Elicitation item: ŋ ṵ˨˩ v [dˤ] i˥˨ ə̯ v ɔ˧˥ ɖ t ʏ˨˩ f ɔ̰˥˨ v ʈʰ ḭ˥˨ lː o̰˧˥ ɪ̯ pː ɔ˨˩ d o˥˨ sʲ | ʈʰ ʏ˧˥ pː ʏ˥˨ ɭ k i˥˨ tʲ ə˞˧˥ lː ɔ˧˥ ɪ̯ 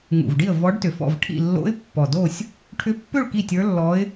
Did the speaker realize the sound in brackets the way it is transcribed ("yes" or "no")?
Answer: no